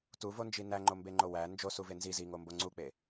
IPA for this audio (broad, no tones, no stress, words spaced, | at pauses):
tuvond͡ʒi næŋ͡ǃombeŋ͡ǃo wæ nd͡ʒosuve nzi ziŋombo ŋ͡ǀuk͡pe